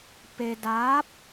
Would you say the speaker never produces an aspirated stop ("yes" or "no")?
yes